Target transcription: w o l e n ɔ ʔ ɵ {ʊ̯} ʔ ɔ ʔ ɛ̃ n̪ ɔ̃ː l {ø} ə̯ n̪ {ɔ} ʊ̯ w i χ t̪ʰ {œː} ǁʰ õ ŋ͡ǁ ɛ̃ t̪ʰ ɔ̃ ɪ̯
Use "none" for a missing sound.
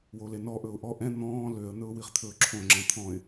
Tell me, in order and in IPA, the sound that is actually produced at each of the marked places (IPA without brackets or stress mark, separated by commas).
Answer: ʊ̯, ø, ɵ, ɵː